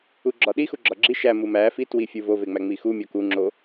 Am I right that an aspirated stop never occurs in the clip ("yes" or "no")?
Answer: yes